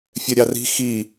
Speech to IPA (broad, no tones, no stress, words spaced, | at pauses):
fʲɛɾʲɑri̤ xi